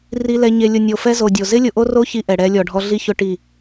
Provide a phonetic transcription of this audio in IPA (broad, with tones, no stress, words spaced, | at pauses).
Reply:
ri˨ lɛ˨ɲe˨lʲʊ˨ nʲo˨fɛ˦zo˨dʲo˨ zɪ˦lʲʊ˨ʔo˦ro˦ çi˦ʔɛ˨ɽɛ˦ lʲɔ˨ɖʱɔ˦ ɮi˦çʊ˦ ʈi˦˨